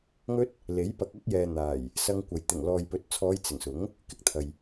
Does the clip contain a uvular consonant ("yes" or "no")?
no